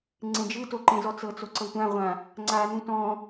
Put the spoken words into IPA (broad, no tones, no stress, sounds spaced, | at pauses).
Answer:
ŋ͡ǀ ẽ d͡ʒ ɯ t o ǃ ẽ z ɔ t͡s ɤ t͡s o ǀ ɤ tʷ ã ʁʷ ã | ŋ͡ǀ a n ũ t ɔ̃